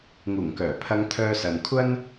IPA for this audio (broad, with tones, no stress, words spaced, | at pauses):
ŋuː˨˩ŋkœː˨˩ pʰɐ˧ŋt̪ʰœː˧sɐ˨nkʷʰɐ˥n